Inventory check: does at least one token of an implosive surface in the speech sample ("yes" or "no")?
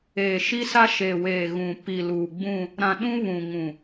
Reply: yes